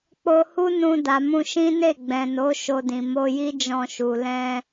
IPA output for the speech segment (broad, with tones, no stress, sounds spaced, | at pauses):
k͡p o˧ h u˦ n ũ˧ d a˨ m ũ˧ ʃ ĩ˦ n e˦˨ ɡ͡b ɛ̃˨ n o˨˦ ʃ o˧ d ĩ˨ m o˧ j i˦ d͡ʒ ɔ̃˧ ʃ u˨ l ɛ̃˧